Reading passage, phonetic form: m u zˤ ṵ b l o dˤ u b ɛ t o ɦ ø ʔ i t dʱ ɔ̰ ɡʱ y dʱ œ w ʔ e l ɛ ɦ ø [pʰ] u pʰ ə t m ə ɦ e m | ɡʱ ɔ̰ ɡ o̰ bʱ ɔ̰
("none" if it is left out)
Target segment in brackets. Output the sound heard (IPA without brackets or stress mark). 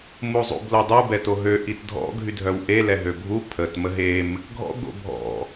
bʱ